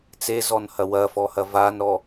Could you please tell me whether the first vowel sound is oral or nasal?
oral